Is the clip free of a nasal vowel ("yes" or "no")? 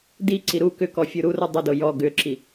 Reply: yes